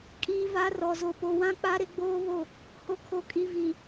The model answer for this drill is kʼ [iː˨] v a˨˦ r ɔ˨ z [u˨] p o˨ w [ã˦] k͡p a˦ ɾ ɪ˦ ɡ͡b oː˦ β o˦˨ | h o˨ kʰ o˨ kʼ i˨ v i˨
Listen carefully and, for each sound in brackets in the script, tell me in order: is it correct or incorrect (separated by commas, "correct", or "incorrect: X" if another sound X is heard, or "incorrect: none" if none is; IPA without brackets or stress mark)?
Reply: correct, incorrect: o˨, correct